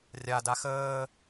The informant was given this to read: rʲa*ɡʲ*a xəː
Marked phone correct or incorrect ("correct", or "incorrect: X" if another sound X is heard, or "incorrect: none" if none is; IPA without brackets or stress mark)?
incorrect: d